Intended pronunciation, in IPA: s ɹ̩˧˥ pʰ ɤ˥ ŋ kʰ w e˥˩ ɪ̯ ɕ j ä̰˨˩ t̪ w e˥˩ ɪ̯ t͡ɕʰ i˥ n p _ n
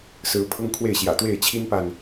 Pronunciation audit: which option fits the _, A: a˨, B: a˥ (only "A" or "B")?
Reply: A